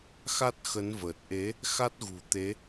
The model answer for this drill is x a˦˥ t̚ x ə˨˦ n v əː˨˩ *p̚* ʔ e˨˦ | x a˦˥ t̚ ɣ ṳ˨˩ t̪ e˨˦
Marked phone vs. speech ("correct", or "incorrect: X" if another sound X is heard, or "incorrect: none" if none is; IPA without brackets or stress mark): incorrect: t̚